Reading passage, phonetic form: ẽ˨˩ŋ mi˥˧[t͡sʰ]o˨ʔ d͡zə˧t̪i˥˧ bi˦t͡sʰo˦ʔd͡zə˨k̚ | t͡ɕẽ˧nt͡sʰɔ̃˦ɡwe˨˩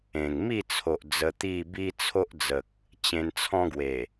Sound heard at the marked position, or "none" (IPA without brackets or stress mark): t͡sʰ